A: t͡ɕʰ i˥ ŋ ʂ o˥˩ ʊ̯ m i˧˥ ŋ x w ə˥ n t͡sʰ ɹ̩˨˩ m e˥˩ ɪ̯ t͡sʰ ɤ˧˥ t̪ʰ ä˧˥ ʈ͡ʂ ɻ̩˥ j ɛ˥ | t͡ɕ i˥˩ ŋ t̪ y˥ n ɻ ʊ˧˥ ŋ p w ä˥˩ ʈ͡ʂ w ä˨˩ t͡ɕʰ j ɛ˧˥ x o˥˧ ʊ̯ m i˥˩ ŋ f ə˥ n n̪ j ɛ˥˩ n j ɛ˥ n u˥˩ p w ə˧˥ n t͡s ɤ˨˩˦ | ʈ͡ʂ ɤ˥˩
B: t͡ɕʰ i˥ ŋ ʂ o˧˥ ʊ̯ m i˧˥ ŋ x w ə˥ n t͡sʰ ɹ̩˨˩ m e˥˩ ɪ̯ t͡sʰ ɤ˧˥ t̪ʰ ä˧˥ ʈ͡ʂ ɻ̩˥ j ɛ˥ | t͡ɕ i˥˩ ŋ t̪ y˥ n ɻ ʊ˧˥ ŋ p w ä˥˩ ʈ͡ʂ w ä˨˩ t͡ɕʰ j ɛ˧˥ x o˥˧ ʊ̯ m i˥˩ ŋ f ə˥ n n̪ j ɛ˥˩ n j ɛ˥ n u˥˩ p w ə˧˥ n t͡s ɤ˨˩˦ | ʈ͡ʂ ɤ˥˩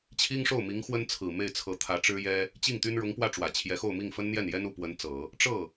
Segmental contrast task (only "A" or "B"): A